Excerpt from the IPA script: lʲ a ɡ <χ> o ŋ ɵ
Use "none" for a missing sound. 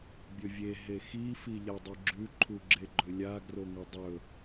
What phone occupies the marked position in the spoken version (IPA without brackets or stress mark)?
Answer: r